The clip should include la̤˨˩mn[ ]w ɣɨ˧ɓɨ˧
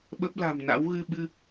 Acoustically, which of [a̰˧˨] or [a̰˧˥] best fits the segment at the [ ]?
a̰˧˥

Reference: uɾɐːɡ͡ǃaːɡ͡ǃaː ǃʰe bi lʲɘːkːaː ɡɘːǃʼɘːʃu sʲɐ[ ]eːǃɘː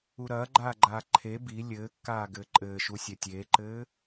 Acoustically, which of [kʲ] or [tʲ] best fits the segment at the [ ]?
tʲ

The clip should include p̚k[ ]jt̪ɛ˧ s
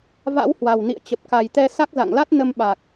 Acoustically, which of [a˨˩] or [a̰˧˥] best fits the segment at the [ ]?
a˨˩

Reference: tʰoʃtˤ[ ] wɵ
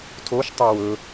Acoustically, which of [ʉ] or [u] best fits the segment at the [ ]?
ʉ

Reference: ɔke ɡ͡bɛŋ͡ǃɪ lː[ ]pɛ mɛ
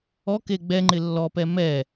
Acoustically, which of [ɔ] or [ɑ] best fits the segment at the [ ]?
ɔ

